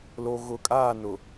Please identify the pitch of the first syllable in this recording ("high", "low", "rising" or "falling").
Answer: low